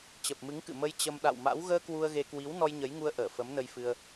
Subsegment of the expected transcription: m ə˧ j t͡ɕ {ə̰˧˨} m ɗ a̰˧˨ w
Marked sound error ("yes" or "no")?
yes